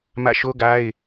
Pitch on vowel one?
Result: falling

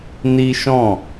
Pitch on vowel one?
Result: high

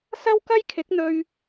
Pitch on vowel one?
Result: high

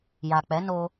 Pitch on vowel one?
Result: low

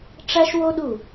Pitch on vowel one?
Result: high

